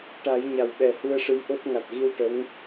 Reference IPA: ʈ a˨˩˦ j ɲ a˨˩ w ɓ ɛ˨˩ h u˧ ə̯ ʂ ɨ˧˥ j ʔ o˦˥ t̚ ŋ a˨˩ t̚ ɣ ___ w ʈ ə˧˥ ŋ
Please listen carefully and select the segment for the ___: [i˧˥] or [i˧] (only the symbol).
i˧